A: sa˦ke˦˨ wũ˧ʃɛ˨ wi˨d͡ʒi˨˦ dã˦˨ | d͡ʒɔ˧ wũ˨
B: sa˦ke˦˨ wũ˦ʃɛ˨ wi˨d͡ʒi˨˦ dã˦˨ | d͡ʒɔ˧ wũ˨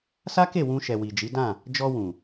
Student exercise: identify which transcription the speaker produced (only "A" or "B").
A